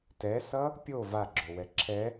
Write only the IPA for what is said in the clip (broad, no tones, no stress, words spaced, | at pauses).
tɛsʌ | pʲo vaɡ͡ǁowɛ ǁʰɛ